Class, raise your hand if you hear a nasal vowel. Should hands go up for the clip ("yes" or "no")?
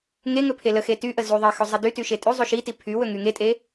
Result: no